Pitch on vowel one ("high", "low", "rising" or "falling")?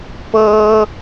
high